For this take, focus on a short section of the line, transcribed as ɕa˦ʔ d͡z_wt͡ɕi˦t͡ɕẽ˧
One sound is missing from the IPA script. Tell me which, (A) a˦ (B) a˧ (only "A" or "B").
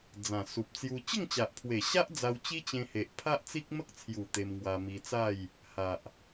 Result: B